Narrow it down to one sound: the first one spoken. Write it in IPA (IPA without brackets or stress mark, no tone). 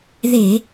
ð